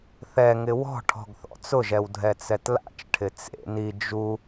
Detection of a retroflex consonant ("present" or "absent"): present